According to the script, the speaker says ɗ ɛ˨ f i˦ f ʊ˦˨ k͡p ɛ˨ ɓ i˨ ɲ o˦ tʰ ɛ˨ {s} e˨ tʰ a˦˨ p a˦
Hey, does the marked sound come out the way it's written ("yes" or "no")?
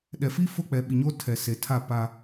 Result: yes